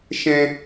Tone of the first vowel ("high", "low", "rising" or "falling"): high